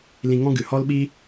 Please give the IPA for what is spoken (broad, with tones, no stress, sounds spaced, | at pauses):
l ĩ˧ ŋ ɔ̃˦ ɡ ɨ˨ h ɔ˦ l ɓ i˦